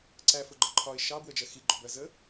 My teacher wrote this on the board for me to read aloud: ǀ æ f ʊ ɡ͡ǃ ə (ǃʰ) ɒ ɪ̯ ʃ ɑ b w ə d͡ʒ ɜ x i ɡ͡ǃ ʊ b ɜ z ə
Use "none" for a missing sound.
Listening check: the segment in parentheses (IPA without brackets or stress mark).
ǃʰ